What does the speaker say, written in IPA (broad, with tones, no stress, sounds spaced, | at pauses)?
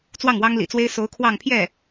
t͡s w ɑ˥˩ ŋ w ɑ˥ ŋ l ḭ˨˩ t͡s w e˥ ɪ̯ s o˧˥ ʊ̯ kʰ w ɑ˥˧ ŋ pʰ j ɛ˥˩